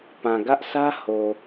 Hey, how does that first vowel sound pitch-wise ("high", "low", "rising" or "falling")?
low